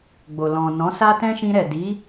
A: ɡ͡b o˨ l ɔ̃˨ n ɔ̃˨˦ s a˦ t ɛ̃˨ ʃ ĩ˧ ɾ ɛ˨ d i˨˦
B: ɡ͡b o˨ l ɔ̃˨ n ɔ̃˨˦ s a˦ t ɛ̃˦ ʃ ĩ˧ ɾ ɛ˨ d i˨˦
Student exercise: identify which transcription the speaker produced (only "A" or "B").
B